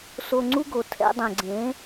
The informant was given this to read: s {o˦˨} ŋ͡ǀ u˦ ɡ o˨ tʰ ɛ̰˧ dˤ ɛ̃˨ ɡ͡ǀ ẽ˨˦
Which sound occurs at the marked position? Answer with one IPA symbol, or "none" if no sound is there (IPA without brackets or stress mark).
o˧